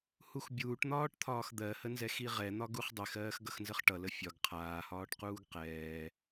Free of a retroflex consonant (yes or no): no